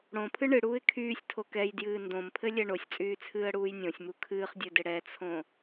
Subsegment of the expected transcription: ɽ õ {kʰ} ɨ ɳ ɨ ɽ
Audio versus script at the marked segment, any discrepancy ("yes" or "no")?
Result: yes